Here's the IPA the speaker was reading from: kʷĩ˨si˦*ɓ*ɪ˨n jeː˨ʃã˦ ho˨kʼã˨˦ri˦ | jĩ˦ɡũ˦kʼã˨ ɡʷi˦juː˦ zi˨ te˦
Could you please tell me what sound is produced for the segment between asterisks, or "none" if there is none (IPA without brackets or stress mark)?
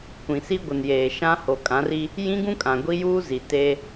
ɡʷ